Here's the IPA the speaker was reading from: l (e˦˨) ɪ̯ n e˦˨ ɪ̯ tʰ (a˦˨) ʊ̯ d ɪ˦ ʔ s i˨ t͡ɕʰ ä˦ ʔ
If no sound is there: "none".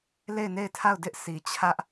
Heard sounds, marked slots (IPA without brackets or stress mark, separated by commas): e˦˨, a˦˨